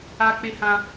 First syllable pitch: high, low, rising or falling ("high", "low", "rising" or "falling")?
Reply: high